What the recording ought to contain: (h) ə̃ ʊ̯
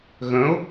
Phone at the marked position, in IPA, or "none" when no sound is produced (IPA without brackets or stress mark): ɣ